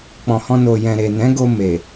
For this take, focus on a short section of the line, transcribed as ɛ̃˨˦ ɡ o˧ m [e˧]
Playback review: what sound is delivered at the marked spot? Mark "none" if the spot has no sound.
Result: e˨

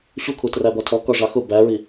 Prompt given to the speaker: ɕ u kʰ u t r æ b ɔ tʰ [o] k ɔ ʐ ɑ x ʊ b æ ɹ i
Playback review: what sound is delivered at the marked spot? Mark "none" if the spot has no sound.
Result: ɔ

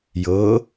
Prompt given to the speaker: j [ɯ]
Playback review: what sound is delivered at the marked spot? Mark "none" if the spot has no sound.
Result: ɤ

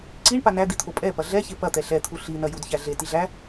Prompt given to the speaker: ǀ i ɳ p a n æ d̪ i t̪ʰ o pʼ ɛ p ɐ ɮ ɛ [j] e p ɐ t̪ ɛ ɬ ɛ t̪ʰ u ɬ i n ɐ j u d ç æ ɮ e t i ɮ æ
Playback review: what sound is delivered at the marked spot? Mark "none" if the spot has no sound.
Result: ç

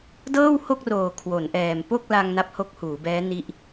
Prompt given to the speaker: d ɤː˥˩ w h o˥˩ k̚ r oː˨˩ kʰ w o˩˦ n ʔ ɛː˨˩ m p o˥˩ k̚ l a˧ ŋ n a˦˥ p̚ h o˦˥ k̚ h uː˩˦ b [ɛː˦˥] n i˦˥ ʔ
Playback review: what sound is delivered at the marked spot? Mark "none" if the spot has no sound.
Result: ɛː˦˥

